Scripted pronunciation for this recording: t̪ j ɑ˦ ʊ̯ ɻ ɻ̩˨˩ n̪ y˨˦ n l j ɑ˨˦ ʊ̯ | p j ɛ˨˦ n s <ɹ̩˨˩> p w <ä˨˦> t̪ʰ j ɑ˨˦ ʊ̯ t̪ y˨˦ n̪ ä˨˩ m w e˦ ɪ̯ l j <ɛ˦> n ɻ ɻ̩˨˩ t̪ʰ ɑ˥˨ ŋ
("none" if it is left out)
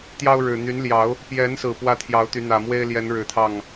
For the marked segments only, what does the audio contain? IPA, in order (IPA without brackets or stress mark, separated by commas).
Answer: ɹ̩˨˩, ä˥˨, ɛ˨˦